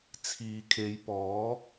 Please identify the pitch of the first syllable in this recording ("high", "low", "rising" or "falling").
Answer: low